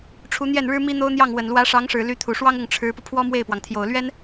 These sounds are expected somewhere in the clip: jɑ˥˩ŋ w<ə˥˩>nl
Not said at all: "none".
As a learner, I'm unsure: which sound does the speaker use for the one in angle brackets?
ə˨˩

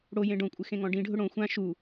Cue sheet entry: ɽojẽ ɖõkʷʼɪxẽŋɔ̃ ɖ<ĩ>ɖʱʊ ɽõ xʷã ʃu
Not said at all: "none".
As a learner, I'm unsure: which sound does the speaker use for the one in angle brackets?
ĩ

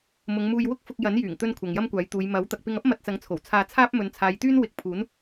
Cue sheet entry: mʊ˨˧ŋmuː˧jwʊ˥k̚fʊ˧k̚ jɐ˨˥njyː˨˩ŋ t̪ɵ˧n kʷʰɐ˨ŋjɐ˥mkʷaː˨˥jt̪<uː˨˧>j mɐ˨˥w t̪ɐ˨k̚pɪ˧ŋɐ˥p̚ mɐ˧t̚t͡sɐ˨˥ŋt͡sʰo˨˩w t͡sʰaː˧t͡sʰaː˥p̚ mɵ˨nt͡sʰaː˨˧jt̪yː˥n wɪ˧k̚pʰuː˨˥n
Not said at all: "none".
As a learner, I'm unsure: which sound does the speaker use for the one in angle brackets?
uː˨˧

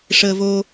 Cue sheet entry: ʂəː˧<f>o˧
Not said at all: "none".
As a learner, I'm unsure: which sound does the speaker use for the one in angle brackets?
v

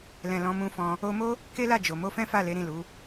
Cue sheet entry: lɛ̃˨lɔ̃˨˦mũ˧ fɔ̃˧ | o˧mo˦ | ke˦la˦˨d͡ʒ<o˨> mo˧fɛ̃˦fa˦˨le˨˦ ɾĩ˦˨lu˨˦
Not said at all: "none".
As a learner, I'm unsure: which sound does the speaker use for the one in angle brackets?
o˨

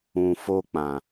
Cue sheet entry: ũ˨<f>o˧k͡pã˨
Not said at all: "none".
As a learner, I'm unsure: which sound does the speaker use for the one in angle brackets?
f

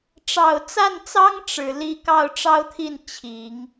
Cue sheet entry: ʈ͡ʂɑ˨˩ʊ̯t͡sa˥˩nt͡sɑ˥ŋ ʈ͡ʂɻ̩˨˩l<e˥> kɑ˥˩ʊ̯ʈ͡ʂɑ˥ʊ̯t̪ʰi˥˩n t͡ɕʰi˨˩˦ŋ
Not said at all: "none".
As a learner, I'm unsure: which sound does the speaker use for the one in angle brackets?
i˥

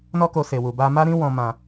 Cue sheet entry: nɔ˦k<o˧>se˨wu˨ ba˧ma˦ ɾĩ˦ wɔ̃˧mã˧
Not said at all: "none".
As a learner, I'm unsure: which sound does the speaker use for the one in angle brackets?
o˧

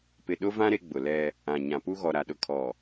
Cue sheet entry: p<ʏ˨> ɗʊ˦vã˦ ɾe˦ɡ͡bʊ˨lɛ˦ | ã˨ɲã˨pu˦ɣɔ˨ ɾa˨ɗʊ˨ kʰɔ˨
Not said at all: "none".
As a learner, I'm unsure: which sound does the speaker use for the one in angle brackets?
ɪ˨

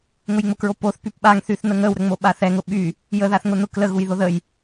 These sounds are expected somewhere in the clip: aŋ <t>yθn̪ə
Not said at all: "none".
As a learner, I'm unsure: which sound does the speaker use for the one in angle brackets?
θ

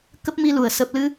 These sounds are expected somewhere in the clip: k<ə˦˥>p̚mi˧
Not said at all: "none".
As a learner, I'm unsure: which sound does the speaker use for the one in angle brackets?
ə˦˥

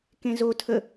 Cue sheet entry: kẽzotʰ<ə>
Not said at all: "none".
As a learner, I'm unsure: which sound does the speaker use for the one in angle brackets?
ə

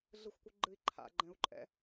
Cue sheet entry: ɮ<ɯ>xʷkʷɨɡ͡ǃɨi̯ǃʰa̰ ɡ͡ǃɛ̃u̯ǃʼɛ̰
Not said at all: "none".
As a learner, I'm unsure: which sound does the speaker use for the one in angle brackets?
ɯ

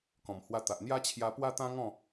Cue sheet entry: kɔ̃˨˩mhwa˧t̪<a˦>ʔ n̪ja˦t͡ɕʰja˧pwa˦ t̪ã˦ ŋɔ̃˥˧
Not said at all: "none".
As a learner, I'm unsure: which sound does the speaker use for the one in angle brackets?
a˨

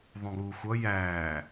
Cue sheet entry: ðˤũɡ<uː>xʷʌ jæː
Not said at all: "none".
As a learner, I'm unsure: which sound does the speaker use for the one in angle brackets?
uː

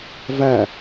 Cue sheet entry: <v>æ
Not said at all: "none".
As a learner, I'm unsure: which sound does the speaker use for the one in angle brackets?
v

